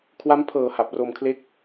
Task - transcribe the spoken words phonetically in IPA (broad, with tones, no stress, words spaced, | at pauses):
kʰwa˦˥mpʰɤː˨˩ ha˨˩p̚roː˧mkʰle˥˩k̚